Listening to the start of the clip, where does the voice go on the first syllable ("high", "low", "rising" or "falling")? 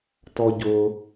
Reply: high